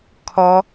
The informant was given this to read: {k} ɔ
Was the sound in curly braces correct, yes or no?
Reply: no